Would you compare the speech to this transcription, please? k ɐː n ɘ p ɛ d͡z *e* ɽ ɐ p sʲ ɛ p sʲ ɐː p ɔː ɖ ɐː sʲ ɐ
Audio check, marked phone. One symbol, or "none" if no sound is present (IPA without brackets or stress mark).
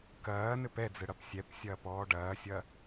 ɘ